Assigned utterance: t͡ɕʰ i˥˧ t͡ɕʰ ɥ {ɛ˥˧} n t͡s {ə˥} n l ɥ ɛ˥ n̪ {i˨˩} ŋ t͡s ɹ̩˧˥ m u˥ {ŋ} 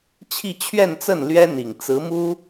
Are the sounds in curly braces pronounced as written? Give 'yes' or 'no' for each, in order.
yes, no, yes, no

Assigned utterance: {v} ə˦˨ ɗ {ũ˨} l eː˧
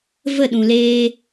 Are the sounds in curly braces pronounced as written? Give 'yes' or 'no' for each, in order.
yes, yes

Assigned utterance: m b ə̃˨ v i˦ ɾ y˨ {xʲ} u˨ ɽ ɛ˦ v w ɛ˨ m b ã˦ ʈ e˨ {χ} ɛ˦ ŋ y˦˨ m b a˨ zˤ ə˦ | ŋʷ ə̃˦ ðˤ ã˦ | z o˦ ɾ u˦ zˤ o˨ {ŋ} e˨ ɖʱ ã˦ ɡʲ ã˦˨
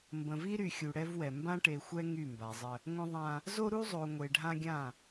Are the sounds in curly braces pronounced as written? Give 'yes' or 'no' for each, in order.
yes, no, no

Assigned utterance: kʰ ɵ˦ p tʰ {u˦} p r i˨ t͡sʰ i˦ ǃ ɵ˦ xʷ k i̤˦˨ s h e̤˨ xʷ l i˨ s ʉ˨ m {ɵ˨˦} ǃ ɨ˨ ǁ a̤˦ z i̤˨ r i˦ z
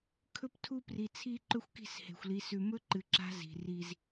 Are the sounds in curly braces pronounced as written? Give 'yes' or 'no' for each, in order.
yes, no

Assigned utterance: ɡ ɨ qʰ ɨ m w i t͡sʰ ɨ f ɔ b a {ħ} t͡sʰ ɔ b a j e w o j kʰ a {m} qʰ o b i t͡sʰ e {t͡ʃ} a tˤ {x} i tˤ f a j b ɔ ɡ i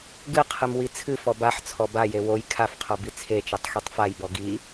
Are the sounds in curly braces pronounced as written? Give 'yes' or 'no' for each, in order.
yes, no, yes, yes

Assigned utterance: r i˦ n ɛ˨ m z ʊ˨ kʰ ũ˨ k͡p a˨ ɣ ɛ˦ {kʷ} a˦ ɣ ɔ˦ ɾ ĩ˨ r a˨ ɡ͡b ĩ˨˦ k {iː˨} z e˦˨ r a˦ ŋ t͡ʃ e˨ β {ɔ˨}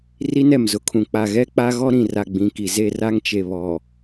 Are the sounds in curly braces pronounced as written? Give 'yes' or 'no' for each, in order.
no, no, yes

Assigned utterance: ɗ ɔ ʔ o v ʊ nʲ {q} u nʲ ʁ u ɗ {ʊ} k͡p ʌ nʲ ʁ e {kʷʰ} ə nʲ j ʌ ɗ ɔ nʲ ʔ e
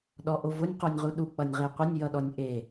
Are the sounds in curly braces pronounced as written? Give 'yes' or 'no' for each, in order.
yes, no, no

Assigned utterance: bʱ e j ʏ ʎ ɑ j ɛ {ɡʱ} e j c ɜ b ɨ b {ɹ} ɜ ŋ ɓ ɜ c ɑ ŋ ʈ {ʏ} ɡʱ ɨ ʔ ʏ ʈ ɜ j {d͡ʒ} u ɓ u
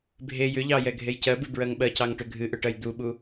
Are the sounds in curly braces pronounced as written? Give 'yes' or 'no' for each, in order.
yes, yes, yes, no

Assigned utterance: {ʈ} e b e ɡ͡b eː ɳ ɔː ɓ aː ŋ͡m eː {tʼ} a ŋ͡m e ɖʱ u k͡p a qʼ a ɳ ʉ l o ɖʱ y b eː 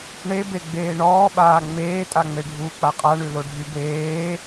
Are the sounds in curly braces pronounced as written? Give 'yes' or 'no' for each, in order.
no, yes

